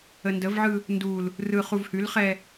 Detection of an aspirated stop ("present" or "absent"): absent